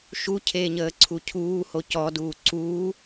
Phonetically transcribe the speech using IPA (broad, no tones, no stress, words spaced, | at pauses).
ʃucʰeːɲəː ǀʰucʰuː hocɔduː ǀuː